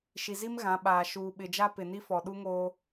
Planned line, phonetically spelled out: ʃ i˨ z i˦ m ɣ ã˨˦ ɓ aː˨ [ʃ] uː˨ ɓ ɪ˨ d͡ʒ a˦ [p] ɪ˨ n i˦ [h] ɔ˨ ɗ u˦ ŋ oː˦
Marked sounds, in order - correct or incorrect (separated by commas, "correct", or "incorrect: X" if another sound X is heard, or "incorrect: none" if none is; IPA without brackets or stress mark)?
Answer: correct, correct, incorrect: f